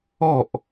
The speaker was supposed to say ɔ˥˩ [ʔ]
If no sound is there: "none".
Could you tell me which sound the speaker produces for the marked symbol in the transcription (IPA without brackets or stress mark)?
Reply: ʔ